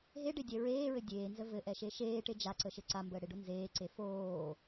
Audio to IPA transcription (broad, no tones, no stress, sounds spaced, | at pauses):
ɦ e ɖ e dʲ ɛ ɹ eː ɹ ɘ dʲ eː n z ə v ɘ ʔ ɛ ʃ e ʃ eː ʈ e d͡ʒ a ǀ ə ʃ ɘ ǀ a m b əː ɽ e ɖ o n z eː ǀ e f oː